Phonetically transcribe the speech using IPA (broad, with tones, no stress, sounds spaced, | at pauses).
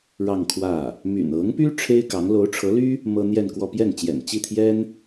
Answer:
ɻ ɑ˥˧ ŋ kʰ w ä˥˩ | m y̰˨˩ n ɤ˧˥ ŋ p y˥ ʈ͡ʂʰ e˥ ɪ̯ k ɑ˧˥ ŋ l o˧˥ ʊ̯ ʈ͡ʂʰ ɤ˧˥ l y˥ | m ɤ˥ n̪ j ɛ˥˧ n k w ɔ˥˧ p j ɛ˥˩ n t͡ɕ j ɛ̰˨˩ n t͡ɕ i˥˩ t̪ʰ j ɛ˥ n